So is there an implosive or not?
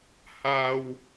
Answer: no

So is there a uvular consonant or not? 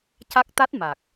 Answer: no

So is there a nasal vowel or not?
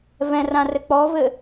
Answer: yes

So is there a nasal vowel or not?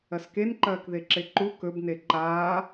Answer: no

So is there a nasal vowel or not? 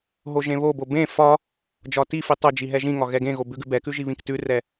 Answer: yes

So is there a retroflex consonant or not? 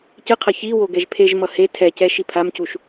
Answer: no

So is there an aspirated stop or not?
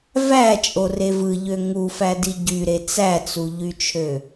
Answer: yes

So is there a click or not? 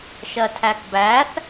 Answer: no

